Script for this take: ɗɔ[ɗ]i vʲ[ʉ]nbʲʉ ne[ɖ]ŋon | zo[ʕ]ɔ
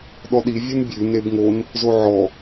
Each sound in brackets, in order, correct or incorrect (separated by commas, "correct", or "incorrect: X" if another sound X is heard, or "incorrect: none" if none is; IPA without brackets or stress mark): correct, incorrect: u, incorrect: b, correct